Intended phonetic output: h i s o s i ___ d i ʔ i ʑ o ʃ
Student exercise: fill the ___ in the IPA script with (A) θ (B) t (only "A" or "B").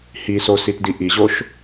B